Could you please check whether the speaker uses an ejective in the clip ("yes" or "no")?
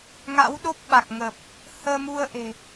no